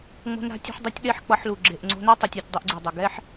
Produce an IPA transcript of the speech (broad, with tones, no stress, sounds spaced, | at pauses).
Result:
ŋ͡m o̤˧ n ɾ a̤˧ tʲ o̤˧ ħ dˤ ʌ˦ tʲ ɗ e˦ ħ k͡p ʌ˧ ħ l u˨ ɡ͡ǁ e˨ ʔ ŋ͡ǀ o̤˧ n a˦ tˤ ʌ˧ tʲ a˧ tʲ dˤ e˧ ʔ ɡ͡ǀ i˨ dˤ o˨ ɡ ɛ˦ ħ